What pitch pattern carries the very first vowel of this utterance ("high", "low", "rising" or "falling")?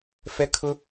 high